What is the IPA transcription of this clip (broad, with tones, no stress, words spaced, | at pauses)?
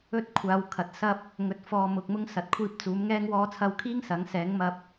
ɵ˥t̚kʷʰaː˨˧wkʰɐ˨t̚sɐ˥p̚ | ŋɵ˨t̚fɔː˨mʊ˨k̚ mʊ˥ŋsɐ˨t̚kʷʰiː˧p̚ t͡suː˨˥mŋɛː˥ŋ wɔː˧t͡sʰɐ˧wkʰiː˥ŋ sɐ˨˥ŋ sɛː˨˥ŋmɐ˧p̚